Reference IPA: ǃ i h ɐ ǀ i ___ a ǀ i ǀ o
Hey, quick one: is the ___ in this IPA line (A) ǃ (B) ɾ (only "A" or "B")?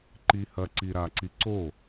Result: B